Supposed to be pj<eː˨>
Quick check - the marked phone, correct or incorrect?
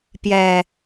incorrect